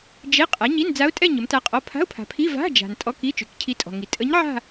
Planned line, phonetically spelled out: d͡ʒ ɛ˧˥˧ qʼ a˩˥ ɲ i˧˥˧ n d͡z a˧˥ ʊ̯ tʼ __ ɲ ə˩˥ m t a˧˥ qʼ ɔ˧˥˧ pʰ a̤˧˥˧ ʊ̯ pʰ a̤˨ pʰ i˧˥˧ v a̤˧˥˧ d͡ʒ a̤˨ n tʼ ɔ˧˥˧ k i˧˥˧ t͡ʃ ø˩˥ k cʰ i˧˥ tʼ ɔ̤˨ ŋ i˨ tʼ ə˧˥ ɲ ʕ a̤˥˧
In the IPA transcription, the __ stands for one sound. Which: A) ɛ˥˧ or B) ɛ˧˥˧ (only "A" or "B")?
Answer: A